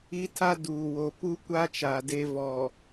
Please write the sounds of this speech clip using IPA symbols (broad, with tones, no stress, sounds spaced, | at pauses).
i˦ tʰ a˦ d uː˨ w o˨ p u˦ kʷ a˦ t͡ʃ aː˨ d e˦ v ɔ˨